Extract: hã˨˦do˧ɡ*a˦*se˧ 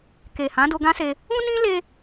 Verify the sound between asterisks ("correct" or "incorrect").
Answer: incorrect